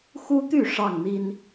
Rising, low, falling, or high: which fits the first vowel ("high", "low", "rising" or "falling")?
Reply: high